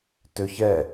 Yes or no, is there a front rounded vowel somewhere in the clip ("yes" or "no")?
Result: yes